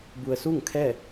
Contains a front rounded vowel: no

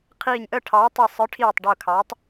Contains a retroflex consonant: yes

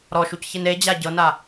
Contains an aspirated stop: no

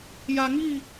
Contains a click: no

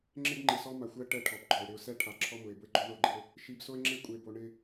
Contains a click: yes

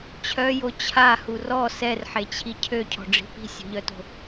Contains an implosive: no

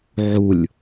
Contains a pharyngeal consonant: yes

